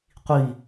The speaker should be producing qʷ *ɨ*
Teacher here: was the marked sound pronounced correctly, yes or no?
no